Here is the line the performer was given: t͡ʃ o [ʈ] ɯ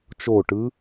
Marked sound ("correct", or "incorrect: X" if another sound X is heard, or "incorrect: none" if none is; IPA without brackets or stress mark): correct